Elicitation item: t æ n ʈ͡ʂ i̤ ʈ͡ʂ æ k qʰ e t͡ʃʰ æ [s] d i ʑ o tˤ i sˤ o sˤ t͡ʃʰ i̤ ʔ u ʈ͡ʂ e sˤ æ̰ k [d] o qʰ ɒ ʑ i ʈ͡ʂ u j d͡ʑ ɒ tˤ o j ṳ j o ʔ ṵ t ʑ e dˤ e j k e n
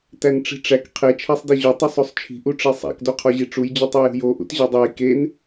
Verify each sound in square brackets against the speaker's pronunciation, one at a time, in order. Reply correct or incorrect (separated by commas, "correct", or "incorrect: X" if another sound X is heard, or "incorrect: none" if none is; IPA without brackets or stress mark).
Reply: incorrect: sˤ, correct